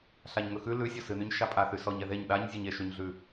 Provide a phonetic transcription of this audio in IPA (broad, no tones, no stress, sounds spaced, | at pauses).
ɬ a ɲ ŋ ɵ x ʉ l ʉ sʲ ɔ s ɨ n y ɲ ʃ a pʼ a θ y s ɔ ɲ ɛ ð e ɲ ɗ a ɲ zʲ e ɲ e ʃ y ɲ ɮ ʉ